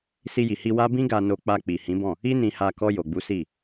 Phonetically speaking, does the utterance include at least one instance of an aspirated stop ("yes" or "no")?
no